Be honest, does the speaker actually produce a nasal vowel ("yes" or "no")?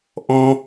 yes